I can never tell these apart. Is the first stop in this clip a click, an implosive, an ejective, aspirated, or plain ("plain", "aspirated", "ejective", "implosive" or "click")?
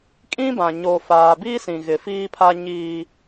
ejective